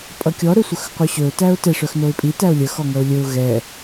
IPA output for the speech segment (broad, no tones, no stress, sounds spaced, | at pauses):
pʼ ʌ kʲ ɔ ɾ ɵ sʷ œ x qʷ œ ɕ ɵ ʊ̯ t æ ʊ̯ t ɛ ʂ œ x n o ɪ̯ pʼ i t æ ʊ̯ lʲ ə x ɔ ŋ ʌ ʊ̯ lʲ ɵ ʊ̯ ɣ ɛ